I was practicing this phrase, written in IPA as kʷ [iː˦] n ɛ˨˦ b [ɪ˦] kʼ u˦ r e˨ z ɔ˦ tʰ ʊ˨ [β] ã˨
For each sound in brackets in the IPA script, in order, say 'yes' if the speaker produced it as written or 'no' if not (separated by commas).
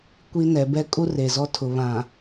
no, no, yes